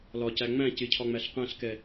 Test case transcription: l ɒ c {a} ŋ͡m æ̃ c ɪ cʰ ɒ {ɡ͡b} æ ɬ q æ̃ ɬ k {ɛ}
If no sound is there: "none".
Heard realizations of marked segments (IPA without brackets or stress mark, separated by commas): æ, ŋ͡m, ɛ